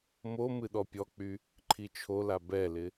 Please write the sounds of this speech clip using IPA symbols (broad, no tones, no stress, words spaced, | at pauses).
mo mɨɗɔpʲɔk͡py | ǃʰit͡ʃʰola bɛlɪ